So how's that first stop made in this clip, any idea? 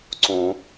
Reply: click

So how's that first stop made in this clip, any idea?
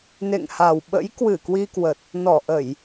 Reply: implosive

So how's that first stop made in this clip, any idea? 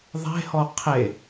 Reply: aspirated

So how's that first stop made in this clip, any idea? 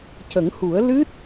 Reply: plain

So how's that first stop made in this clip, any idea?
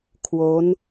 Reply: aspirated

